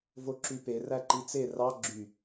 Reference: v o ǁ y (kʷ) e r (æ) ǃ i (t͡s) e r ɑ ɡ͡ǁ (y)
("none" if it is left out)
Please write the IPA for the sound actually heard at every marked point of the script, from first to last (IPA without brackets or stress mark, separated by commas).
p, æ, t͡s, y